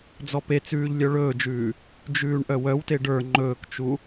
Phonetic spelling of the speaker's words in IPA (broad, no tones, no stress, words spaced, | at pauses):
d͡zɔpet͡sʉːʎ lʲœɭɵːd͡ʒʉː | d͡ʒʉːɳʔœwœwte ɖə˞ ŋ͡ǃɵːkt͡ʃu